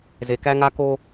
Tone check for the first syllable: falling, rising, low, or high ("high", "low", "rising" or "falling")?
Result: low